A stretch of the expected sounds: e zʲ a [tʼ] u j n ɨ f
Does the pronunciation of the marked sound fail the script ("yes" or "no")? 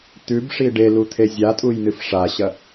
no